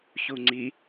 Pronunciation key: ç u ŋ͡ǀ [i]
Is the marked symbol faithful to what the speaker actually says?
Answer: yes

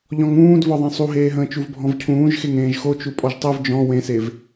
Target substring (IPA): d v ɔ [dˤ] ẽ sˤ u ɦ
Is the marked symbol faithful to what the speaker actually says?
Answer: no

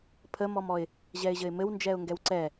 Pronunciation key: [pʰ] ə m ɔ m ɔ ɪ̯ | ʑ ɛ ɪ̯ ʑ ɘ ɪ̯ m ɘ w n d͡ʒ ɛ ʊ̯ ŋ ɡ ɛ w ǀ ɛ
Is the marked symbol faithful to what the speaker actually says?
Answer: yes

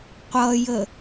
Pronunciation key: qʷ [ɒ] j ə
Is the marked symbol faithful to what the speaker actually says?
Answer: no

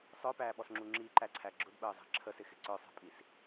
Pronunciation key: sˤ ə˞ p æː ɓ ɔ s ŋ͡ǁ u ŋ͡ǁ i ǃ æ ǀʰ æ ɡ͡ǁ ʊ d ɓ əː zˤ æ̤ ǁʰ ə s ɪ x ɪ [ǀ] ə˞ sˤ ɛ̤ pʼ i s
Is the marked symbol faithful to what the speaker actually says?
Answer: yes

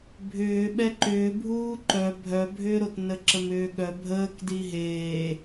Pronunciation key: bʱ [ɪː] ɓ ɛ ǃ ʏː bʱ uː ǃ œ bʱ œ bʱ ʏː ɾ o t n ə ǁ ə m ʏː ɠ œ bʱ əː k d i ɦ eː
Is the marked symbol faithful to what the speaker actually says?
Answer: no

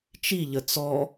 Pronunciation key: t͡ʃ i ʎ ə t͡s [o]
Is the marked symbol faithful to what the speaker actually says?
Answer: no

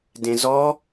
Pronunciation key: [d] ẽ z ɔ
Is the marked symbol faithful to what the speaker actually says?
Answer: yes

